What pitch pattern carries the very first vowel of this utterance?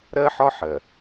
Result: high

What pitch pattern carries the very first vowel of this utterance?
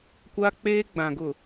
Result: high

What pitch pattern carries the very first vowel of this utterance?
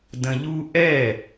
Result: low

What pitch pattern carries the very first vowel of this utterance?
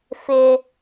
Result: high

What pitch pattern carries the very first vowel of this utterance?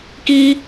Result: high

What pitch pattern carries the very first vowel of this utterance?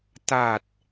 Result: low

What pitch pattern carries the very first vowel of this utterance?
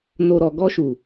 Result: low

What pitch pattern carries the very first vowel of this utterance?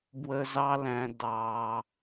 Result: high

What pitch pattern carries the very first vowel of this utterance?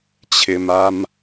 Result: low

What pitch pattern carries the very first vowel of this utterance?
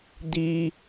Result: high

